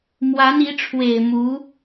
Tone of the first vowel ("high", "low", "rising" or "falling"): rising